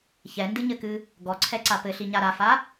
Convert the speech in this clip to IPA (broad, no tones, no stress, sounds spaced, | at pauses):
ç ɛ n d ɨ ɲ ɘ k ɨ | ɡ ɔ ǀʰ ɛ ǀ a p ɘ ɬ i ɲ a ɾ a f a